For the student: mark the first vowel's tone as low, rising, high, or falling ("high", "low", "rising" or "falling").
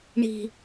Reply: high